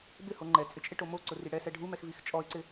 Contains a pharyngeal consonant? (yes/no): no